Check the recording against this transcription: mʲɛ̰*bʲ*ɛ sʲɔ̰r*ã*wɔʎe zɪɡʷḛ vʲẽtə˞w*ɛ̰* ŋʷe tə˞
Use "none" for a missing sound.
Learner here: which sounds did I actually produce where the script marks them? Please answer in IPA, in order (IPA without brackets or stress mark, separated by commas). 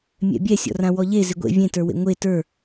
bʲ, ã, ḛ